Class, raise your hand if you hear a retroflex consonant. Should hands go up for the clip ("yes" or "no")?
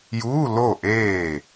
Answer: no